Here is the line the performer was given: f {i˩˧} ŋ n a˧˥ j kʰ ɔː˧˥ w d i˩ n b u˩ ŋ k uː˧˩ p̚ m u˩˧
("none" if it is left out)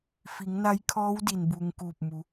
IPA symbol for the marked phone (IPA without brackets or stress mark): i˩˧